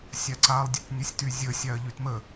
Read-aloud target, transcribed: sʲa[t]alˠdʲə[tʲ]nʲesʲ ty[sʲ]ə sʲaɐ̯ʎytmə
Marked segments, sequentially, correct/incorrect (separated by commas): incorrect, correct, incorrect